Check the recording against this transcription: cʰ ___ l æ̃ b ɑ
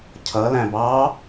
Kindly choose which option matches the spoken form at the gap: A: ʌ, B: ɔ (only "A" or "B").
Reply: A